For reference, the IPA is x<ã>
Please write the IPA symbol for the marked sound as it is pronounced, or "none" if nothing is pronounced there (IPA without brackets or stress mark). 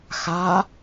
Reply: a